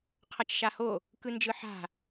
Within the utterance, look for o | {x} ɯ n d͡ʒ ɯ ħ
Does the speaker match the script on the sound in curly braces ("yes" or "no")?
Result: no